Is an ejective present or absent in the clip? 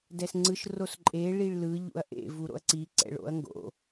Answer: present